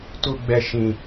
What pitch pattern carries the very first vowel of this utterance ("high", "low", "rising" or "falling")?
low